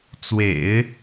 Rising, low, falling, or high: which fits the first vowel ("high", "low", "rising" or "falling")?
low